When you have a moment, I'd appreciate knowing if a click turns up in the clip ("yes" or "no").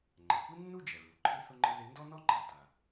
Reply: yes